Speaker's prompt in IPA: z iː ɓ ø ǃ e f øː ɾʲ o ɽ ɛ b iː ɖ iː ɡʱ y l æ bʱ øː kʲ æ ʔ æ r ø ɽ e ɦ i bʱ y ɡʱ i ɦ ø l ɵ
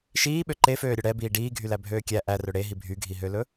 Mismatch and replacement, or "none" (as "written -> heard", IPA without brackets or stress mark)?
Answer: z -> ʃ